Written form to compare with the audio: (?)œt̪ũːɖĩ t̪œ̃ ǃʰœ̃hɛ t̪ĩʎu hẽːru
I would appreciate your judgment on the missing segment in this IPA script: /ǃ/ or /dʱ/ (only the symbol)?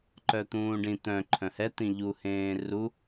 ǃ